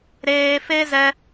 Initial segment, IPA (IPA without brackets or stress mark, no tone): ɾ